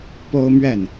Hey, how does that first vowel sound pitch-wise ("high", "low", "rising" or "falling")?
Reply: high